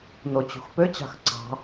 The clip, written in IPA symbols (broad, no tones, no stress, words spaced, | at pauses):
not͡ɕṳxpøt͡ɕɑ̤x ǀɑ̤